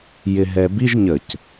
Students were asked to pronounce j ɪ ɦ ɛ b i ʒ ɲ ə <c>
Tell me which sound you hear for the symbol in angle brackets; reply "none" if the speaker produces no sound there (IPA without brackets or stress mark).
c